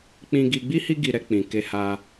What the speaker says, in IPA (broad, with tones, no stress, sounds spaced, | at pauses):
k͡p ĩ˧ ɡ i˧ ɡ͡b i˦ h i˦ ɡ i˧ ɾ ɛ˧ k͡p ĩ˨ k e˧ h a˧